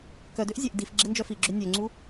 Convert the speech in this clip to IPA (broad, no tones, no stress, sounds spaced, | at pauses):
k œ d ø ʔ zʲ e ʔ d i f ɡ͡ǁ e n d͡ʒ œ f i ɡ͡ǁ ø nʲ ø ŋ͡ǀ u